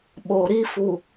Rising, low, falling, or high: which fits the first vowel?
low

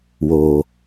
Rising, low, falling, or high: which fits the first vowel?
low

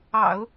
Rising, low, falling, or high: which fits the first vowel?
low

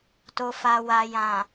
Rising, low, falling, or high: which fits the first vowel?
low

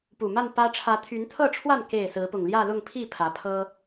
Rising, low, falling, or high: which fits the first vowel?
low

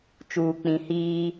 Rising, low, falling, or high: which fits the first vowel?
low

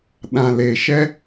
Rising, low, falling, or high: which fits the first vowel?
low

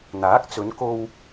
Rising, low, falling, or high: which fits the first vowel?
rising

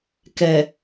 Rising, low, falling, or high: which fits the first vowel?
low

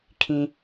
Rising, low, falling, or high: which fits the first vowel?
high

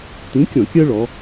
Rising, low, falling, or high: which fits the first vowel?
rising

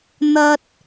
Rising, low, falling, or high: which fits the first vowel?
high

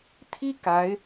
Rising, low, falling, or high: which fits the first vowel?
high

